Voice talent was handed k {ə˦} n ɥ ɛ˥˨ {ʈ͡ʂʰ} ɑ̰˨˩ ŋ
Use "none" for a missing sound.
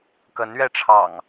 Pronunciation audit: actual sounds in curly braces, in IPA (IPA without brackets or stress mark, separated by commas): ə˨˦, ʈ͡ʂʰ